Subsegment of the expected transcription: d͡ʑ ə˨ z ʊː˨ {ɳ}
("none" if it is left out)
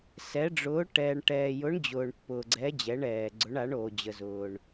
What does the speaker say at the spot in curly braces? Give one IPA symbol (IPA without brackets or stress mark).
ɳ